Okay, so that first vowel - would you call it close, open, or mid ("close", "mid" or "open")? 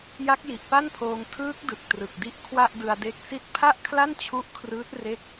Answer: open